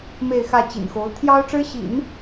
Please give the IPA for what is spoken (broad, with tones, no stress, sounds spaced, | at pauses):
m e˥˧ ɪ̯ x ä˥˩ t͡ɕ ḭ˨˩ n x o˧˥ ʊ̯ t̪ʰ j ɑ˥ ʊ̯ ʈ͡ʂ ɻ̩˥ ɕ ḭ˨˩˦ n